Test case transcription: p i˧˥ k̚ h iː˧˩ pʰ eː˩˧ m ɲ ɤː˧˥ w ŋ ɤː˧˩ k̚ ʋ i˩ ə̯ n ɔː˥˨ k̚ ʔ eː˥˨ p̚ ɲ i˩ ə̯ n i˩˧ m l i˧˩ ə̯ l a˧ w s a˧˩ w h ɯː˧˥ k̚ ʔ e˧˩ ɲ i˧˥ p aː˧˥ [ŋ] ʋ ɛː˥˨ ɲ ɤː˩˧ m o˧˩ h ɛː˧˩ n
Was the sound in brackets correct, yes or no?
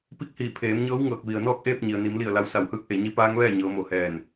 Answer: yes